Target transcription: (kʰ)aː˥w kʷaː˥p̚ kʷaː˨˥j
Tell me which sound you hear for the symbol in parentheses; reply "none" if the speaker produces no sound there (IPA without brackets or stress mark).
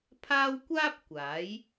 pʰ